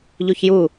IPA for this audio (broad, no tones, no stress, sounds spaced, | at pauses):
ʎ u ç j u